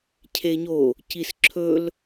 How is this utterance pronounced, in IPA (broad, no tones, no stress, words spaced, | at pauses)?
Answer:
cʰeɲo | cisǁʰɵl